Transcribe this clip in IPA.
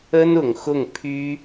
ə˥nʊ˨˩ŋxʊ˥˩ŋ pʰy˥

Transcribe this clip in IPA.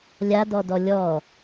lʲadɔdɔ lʲɔ

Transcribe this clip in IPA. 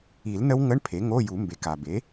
i˨˩˦lnə˦˥w ŋə˧˥˧ɳ pʰe˩˥ ŋo˧˥˧ju˨˩˦mbe˩˥k a˩be˩˥

